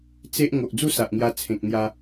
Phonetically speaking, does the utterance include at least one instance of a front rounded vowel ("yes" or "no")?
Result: no